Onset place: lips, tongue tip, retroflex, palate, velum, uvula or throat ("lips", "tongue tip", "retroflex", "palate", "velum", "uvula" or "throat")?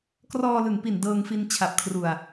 velum